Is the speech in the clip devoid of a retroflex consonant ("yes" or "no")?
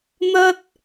yes